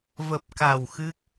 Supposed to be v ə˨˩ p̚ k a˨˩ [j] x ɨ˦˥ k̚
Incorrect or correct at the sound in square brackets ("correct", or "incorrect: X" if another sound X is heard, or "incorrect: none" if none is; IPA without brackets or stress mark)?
incorrect: w